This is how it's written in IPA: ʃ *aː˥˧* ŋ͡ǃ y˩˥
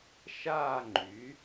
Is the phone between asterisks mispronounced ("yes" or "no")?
no